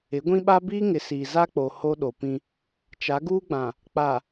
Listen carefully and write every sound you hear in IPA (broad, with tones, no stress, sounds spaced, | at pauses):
ɪ˨˦ ɡʷ ĩ˦ ɓ a˦ b iː˦ ŋ ɪ˨˦ s iː˨ z a˦ k͡p o˨ h o˦ ɗ o˨ p ĩ˦ | t͡ʃ a˨˦ ɡ uː˦ ɡ͡b ã˨ | k͡p a˨